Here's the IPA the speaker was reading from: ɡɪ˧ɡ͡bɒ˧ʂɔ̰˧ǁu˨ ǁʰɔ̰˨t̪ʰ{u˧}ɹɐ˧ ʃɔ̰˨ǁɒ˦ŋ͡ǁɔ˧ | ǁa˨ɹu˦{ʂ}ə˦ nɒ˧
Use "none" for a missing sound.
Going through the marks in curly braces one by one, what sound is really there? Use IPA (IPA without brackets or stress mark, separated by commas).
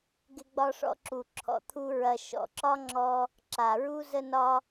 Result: u˦, z